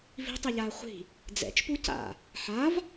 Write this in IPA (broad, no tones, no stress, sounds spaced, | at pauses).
v i̤ tˤ ɛ ʎ aː χʷ i̤ | d͡z ɛ̰ t͡ʃ p u c a̰ | ħ a v